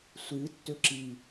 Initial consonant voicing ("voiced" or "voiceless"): voiceless